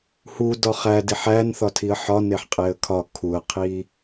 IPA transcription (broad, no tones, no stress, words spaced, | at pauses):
hu dɒχædiħ æn θɒtʰiə̯ħɒneħ qʼeə̯kʰɒ kʰuə̯qʰi